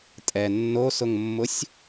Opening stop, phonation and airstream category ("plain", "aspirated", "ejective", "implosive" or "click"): ejective